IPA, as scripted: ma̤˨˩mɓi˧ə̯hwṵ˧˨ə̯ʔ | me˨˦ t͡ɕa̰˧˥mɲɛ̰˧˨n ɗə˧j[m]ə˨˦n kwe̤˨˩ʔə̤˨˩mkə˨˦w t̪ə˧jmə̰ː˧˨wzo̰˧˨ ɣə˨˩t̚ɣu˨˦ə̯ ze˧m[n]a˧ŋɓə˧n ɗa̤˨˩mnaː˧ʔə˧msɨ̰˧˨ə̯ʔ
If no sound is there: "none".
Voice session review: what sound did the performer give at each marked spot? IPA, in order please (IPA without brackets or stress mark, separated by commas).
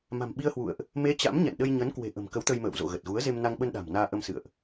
ɲ, n